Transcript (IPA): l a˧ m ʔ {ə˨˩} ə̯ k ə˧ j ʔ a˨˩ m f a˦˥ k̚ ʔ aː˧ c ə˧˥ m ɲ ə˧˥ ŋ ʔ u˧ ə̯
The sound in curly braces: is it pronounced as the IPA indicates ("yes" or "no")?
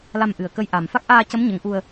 no